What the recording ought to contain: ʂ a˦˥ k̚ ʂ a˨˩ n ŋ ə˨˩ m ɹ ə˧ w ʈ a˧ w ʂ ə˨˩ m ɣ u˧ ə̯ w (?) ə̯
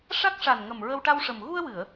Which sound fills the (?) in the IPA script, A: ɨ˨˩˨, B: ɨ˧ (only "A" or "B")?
A